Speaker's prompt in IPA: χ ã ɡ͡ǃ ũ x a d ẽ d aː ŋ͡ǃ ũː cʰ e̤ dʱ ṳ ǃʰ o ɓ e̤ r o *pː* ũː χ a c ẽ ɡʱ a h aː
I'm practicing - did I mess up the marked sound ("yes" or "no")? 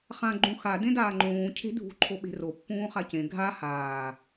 no